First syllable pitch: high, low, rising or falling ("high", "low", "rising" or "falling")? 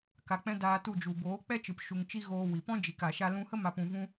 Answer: low